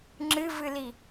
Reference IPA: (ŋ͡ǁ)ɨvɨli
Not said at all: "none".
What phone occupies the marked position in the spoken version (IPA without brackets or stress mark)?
ŋ͡ǁ